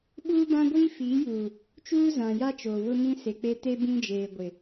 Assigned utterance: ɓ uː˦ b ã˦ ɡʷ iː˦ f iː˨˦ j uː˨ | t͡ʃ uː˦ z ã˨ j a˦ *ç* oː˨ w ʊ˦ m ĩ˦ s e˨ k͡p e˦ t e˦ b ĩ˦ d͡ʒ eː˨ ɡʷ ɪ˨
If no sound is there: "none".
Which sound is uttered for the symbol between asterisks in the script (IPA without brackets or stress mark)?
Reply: t͡ʃ